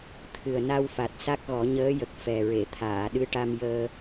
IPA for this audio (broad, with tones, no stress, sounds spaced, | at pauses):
t̪ʰ ɨ˨˩ ə̯ n a˧ w f a˨˩ t̚ s a˦˥ k̚ ɣ ɔ˨˩˦ ɲ əː˧˥ j ə˨˩ k̚ f ɛ˨˩ ɹ e˨˩˨ t̪ʰ aː˨˩˨ ɗ ɨ˧˥ ʈ a˧ m j əː˧